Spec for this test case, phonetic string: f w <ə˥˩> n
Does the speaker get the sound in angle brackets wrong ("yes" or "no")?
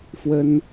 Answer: yes